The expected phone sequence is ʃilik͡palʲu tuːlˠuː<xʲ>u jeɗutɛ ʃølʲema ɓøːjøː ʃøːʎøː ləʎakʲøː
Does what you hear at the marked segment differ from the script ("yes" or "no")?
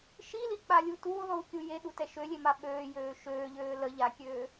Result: yes